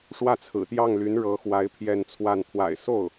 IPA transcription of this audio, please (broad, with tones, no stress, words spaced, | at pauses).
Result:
ʂwä˥˩t͡sʰɹ̩˨˩t̪jɑ˥˩ŋ ly˧˥nɻɤ˧˥xwa˧˥ɪ̯ pʰjɛ˥˧nt͡sʰwa˥˩n pʰwa̰˨˩ɪ̯so˥˩ʊ̯